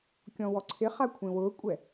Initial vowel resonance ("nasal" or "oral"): nasal